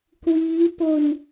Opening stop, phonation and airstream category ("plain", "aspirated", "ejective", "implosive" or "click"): plain